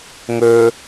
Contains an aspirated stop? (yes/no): no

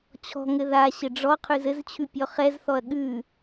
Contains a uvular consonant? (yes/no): yes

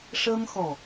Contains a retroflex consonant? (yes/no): yes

